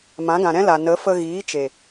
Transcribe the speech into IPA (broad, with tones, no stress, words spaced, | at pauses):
mã˨˦ɡã˨ɾɛ̃˦la˨ nə˨˦fə˧ ɣiː˨˦t͡ʃe˨